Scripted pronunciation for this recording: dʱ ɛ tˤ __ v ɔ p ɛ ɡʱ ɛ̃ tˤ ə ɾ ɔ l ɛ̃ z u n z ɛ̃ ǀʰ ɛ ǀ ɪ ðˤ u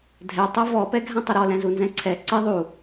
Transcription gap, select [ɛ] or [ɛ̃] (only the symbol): ɛ